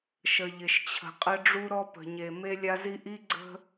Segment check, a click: present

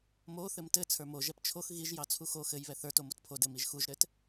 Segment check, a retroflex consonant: absent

